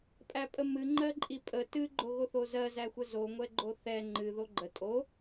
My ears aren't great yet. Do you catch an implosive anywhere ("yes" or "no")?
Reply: no